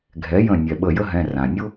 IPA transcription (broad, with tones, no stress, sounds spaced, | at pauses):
ɡʱ ɛ˩˥ j ə̃˧˩ nʲ ɛ˩ ɓ ə˧˩ j ə˥ ɦ ɛ̃˩˧˩ r ã˩ nʲ ʊ˥